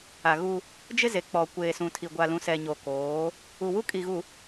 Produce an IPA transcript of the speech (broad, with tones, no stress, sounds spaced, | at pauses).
a˨ ɣ u˦ | d͡ʒ ɪ˦ z e˨ k͡p ɔ˨ kʷ eː˨ s ũ˨ tʰ i˨ ɡʷ a˨ l ũ˨ s ɛ˨ ɲ o˨ k oː˨˦ | u˨ w u˦ kʼ i˨ ɣ u˨